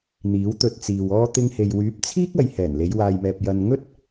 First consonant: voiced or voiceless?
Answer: voiced